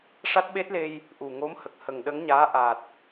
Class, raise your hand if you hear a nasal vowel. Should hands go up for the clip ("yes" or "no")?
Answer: no